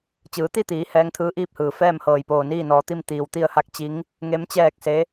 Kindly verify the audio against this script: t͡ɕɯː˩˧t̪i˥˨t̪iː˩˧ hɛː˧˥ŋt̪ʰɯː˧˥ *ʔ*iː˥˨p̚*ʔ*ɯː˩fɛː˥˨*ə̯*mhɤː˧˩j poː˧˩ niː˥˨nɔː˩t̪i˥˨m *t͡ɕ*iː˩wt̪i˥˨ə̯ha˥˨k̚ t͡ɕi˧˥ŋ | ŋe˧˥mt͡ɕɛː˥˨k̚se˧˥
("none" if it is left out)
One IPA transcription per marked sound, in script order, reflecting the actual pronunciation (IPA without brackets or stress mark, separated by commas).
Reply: ʔ, h, none, t̪